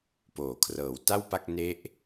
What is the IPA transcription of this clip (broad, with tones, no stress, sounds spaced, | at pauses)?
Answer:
p oː˩˦ kʰ r ɤː˩˦ w t a˥˩ w p a˥˩ k̚ n e˦˥ ʔ